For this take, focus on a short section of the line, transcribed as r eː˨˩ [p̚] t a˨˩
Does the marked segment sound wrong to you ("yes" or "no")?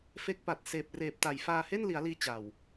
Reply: no